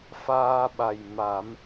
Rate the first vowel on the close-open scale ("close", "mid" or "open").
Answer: open